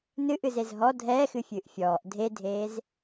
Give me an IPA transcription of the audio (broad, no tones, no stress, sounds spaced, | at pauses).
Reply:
n ɨ ʔ ɨ z e z ɦ ɔ dʱ ɛː x ɨ fʲ ɨː ʔ fʲ ɔː ʔ dʱ e dʱ eː z